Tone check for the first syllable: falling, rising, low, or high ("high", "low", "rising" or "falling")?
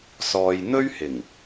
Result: low